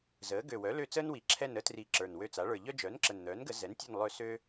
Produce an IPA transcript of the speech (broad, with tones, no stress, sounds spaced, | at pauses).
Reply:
z əː˩˥ ɡ ø˨˩ w œ˩˥ l ø˦˨ t͡s əː˥ n w i˨˩ ǁʰ ɛ˦˨ n ə˥ t r i˨˩ ǁ ə˞˨˩ n w ø˦˨ t͡s a˩˥ ɭ ə˞˨˩ ʎ œ˥ d͡ʒ œː˩˥ n ǁ ə˨˩ n n̪ œː˩˥ n ɡ ə˨˩˦ z ɛ˩˥ n tʲ œ˦˨ n lˠ ø˦˨ s ø˥